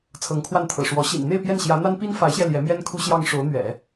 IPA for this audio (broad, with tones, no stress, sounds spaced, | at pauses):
t͡sʰ ɤ˧˥ ŋ kʰ w a˥˩ n t̪ʰ ɤ̰˨˩ ʂ w ɔ˧˥ ɕ ḭ˨˩ n n̪ e˥˧ ɪ̯ p j ɛ˥˩ n ɕ j ä˧˥ n̪ a˥ n p i˥ n f a˧˥ ɪ̯ ɕ j ɛ˧ l j ɛ˧˥ m j ɛ˥ n kʰ u˥ ɕ j ɑ˥ ŋ ʂ o˧˥ ʊ̯ n̪ ɥ ɛ̰˨˩˦